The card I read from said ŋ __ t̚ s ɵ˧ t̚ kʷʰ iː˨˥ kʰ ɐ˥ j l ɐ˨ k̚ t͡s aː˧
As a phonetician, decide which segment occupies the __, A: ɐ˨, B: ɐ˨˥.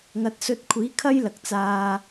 A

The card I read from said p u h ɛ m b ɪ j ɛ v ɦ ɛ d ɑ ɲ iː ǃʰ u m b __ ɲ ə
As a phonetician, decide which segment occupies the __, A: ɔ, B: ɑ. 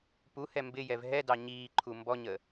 A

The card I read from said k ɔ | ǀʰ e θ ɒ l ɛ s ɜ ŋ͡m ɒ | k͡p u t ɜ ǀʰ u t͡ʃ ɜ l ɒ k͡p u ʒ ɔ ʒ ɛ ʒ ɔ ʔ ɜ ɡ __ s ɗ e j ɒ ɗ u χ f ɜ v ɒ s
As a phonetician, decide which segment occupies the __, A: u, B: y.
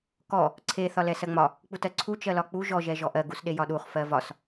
A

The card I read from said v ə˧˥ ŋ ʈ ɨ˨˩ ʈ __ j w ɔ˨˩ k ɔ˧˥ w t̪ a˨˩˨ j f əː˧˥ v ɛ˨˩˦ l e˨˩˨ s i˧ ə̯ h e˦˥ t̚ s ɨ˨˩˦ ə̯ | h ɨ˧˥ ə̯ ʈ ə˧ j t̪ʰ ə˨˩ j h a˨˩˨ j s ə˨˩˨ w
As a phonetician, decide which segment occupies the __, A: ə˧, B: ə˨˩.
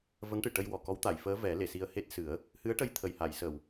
A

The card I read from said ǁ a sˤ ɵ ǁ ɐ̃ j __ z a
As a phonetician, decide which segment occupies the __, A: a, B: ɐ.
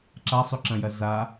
B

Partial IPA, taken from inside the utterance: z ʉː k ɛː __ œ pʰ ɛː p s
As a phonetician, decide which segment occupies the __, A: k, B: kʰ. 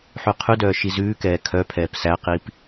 B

